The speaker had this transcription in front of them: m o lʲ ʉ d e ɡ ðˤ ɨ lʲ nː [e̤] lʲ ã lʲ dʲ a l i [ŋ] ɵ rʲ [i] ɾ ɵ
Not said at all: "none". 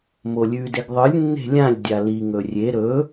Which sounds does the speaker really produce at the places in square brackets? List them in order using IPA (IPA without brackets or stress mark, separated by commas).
e̤, ŋ, e